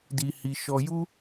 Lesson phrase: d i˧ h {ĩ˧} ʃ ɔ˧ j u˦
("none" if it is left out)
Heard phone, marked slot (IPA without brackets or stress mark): i˧